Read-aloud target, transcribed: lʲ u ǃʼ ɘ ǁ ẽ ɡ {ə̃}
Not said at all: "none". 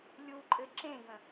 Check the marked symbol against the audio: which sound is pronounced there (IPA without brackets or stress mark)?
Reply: ə̃